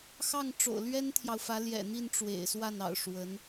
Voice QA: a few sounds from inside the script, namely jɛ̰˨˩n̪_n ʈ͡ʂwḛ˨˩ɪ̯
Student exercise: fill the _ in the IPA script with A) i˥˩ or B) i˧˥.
A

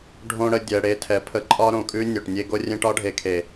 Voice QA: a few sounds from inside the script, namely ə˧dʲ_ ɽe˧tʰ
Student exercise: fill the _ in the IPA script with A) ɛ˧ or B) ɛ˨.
B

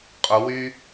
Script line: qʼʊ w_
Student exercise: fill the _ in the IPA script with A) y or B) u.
A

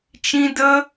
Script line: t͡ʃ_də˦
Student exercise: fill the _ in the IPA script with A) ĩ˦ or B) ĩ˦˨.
A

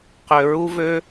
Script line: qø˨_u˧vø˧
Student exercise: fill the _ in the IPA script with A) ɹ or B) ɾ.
A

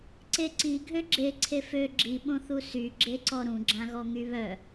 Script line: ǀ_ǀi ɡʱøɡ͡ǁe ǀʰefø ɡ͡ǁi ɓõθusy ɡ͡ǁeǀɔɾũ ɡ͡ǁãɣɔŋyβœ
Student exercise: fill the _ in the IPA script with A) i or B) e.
B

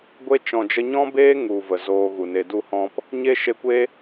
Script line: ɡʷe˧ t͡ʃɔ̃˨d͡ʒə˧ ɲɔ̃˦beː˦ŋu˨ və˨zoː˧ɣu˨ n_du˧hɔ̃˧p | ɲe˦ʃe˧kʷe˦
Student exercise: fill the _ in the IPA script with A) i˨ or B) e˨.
B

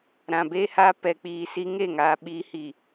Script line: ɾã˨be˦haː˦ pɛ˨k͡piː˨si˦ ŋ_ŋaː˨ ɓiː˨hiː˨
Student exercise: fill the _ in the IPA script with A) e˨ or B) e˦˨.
B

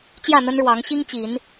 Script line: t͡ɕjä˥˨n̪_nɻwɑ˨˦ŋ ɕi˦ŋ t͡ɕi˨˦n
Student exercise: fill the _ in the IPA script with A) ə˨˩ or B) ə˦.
B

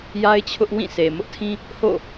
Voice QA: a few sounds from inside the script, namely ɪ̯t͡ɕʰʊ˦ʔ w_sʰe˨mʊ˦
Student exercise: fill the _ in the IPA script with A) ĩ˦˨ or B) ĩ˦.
A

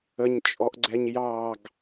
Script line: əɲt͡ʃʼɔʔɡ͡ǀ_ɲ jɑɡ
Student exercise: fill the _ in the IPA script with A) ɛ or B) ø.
A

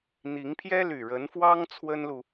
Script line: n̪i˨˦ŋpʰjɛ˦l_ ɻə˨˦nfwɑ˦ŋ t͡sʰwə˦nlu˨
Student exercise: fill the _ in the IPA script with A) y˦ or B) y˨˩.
B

